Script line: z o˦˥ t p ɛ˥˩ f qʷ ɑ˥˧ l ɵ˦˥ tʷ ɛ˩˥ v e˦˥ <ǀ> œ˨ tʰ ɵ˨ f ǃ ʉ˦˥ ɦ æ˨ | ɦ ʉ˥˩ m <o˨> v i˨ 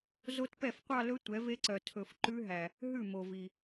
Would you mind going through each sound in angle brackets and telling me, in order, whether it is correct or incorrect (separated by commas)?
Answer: correct, correct